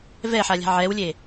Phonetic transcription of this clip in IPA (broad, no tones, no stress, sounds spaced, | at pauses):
v ɛ ħ a lʲ a̤ ʕ ɛ w lʲ e